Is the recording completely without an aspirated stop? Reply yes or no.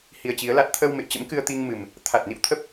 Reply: no